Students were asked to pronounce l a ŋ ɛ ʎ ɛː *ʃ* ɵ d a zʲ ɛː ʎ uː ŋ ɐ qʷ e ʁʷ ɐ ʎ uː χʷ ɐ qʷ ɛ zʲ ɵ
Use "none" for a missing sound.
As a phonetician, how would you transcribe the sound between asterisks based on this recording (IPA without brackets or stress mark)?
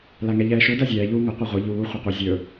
ʃ